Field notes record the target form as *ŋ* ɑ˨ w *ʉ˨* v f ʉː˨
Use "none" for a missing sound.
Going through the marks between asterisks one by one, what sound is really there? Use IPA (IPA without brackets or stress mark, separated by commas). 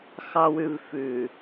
x, ʉ˨